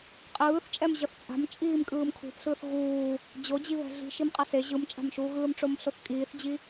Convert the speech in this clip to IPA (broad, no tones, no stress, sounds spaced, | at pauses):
qʼ ɯː θ t͡ʃʼ ɛ m ʑ ʌ θ t͡sʼ a̤ m t͡ʃʼ iː m kʼ ɯː m kʰ ṳ θ ɬ ɯː θ ɣ uː | d͡ʑ o d͡ʑ i β ɛ̤ ɮ i̤ ʃ i m qʼ a s e ʑ ɯ m t͡ʃʼ a̤ m ʃ uː ɣ ɯː m ʈ͡ʂ o m ɬ o θ kʼ iː θ d͡ʑ i